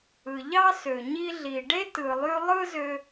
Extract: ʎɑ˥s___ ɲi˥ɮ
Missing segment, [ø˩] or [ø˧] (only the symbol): ø˩